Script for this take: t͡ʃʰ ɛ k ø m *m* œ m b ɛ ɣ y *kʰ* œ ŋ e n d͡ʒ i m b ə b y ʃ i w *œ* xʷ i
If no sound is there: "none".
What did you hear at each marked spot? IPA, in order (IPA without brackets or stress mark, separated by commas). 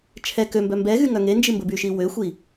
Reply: b, ŋ, ø